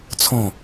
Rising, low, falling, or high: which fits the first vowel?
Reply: falling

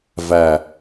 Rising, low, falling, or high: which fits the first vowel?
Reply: low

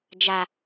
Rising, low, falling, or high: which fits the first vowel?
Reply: low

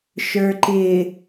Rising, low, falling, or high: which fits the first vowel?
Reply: low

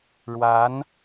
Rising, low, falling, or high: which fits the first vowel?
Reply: rising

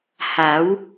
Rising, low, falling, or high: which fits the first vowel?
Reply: rising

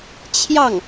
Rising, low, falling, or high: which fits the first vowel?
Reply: falling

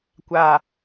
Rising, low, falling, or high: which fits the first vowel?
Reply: low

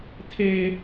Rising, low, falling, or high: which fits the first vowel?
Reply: high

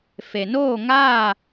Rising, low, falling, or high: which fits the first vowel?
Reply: low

